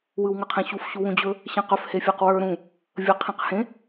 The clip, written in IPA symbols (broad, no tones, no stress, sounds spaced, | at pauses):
w ɯ w ŋ ə qʰ ẽ ɕ u f ɕ u w ũ d͡ʑ ɵ | ɕ ɛ̃ q ɵ f h e fʲ a q w ə˞ ɾ ũ | vʲ ə qʰ ẽ q h ẽ